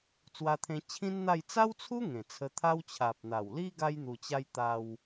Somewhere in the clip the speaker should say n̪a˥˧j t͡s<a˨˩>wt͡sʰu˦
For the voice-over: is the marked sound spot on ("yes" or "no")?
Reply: no